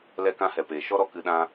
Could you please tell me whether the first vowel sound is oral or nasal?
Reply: oral